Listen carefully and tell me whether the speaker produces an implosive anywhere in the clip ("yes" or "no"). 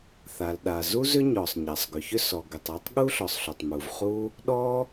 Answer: yes